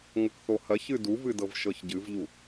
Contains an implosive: no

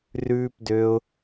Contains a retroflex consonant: no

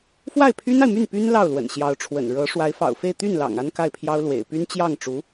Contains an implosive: no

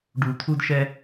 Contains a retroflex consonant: yes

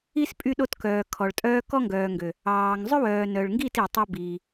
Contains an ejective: yes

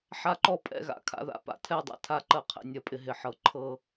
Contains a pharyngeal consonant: yes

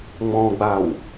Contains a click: no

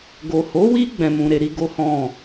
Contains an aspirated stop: no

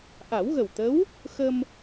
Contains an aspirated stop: no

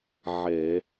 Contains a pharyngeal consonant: yes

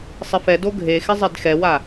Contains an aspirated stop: no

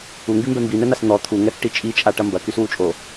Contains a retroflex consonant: yes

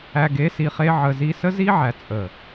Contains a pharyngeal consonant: yes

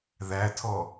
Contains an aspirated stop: yes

